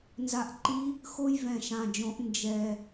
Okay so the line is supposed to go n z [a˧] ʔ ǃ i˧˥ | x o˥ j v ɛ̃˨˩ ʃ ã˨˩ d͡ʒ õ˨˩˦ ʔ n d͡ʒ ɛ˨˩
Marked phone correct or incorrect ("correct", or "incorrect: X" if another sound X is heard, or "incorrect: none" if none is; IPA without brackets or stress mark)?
correct